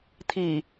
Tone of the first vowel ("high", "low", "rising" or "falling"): low